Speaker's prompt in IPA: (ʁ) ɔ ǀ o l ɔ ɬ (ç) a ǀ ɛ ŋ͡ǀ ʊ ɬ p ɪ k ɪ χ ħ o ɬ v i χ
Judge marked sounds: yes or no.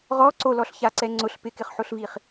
yes, yes

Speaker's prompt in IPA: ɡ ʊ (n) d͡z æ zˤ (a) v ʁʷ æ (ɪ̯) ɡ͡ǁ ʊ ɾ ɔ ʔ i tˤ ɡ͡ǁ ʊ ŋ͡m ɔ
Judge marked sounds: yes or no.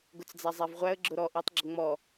no, no, no

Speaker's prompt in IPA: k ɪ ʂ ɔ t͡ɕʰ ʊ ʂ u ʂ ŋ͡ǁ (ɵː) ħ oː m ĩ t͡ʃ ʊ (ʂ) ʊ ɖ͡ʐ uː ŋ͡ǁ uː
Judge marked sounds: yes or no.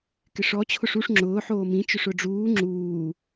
no, yes

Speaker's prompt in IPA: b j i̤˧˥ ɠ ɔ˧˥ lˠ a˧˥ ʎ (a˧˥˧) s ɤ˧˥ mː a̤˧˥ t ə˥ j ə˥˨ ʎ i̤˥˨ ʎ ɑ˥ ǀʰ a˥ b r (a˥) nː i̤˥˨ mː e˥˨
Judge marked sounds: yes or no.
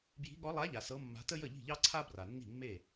no, no

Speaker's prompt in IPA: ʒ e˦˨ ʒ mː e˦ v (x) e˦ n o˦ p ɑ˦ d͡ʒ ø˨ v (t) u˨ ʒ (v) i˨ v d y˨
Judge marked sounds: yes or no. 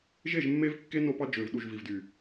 no, no, yes

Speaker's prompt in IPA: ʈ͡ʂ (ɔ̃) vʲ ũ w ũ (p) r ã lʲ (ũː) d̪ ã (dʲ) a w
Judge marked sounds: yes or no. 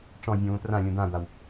yes, no, no, no

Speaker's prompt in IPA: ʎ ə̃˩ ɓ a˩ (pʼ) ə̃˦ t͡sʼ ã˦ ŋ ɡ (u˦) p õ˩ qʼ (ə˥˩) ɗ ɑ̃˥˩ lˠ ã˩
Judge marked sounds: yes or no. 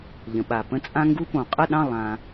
no, yes, yes

